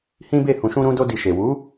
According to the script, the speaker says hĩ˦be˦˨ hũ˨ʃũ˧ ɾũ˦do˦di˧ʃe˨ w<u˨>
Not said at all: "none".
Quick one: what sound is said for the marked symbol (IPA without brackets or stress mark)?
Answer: u˨˦